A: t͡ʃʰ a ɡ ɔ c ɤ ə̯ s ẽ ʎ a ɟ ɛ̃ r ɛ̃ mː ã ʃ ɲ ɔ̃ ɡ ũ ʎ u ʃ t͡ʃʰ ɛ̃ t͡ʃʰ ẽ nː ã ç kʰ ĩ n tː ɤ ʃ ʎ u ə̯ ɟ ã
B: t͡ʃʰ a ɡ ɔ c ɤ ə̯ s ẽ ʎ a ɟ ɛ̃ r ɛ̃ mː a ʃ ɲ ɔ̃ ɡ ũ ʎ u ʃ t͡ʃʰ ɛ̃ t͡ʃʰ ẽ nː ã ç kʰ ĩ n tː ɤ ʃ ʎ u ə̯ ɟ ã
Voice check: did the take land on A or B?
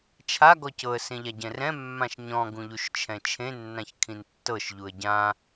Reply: A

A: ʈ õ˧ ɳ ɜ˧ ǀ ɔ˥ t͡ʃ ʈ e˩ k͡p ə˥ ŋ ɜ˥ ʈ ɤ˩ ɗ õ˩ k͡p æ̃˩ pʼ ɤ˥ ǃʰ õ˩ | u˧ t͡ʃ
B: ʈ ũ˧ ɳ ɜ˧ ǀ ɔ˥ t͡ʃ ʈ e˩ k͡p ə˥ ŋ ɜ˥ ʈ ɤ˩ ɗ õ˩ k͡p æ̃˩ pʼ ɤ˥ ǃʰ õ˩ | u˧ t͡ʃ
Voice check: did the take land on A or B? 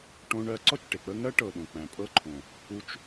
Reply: A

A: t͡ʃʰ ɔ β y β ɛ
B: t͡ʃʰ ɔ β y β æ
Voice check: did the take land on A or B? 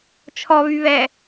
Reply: A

